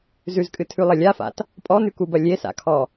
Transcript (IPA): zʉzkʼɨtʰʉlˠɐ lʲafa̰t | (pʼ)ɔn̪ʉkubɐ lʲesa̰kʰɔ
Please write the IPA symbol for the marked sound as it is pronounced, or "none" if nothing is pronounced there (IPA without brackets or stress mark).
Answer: pʼ